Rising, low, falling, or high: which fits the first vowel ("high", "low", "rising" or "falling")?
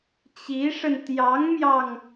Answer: rising